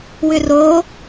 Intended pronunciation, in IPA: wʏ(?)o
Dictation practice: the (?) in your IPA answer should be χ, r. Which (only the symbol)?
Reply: r